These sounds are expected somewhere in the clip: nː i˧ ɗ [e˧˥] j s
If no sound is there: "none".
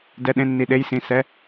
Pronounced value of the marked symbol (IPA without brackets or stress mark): e˧˥